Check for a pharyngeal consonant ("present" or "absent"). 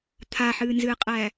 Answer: present